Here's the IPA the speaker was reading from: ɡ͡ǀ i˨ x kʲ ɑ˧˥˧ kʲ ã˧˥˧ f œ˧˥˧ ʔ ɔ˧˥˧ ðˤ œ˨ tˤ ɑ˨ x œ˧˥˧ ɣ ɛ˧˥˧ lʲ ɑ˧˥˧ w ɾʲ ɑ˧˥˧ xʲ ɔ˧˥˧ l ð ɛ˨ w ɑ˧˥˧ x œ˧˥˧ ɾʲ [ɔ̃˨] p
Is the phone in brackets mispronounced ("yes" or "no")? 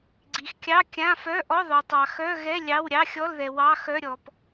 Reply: yes